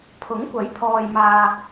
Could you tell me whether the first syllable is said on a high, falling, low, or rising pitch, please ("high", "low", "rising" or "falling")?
rising